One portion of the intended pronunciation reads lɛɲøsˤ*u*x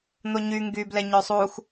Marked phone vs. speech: correct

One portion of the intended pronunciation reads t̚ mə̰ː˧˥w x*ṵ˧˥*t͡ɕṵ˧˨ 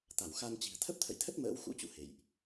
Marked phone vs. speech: correct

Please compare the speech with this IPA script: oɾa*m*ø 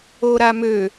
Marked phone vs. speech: correct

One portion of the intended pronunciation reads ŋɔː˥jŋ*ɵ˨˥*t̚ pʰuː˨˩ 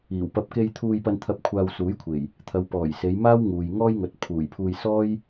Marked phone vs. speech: incorrect: ɵ˨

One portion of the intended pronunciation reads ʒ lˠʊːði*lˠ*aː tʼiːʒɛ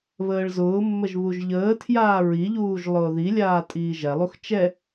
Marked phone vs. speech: incorrect: lʲ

